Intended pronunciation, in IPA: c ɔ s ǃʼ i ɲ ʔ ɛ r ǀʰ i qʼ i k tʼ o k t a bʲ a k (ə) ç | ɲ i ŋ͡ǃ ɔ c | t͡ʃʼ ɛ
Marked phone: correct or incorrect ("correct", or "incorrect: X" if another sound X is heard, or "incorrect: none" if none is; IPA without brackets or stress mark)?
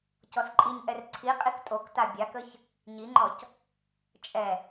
correct